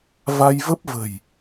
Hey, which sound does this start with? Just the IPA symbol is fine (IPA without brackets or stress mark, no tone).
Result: v